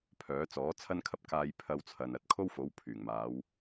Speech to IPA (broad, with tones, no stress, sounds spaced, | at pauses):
pʰ œː˨˥ t͡s ɔː˨˥ t͡sʰ ɐ˧ n kʰ ɐ˧ p̚ k aː˧ j pʰ ɐ˧ w t͡sʰ ɐ˨ n ɐ˨˥ t̚ kʰ o˥ w f o˨˥ w pʰ yː˨˩ ŋ m aː˨˧ w